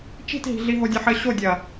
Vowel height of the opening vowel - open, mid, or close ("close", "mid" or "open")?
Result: close